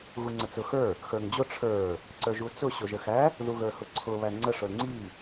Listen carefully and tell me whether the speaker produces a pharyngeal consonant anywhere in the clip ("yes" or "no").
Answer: no